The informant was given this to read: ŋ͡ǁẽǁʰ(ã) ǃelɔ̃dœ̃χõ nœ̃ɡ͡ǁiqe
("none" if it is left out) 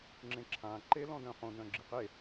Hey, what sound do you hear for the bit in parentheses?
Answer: ã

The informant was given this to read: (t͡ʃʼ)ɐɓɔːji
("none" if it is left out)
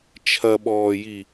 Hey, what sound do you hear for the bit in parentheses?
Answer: t͡ʃʰ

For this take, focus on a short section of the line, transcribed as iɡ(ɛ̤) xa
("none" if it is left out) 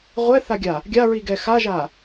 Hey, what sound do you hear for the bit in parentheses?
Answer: ɛ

